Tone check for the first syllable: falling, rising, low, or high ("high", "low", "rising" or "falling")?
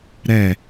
falling